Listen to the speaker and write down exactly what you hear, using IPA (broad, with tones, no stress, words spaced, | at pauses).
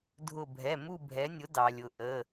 dʱʊ˧˩bʱɛ˩˧˩ mu˥˧bʱɛ˨˥nʲʊ˨˥ dɑ˩lʲʊ˩ ʔə˩˧˩